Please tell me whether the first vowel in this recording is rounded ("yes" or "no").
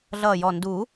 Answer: no